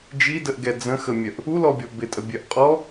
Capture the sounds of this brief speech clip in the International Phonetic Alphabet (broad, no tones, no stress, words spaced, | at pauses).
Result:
d͡ʒidəʔɡɛ d͡zə̃xəmʲœʔ | ulɔbʲɔ bɪtʼəbʲœʔ qʼɔ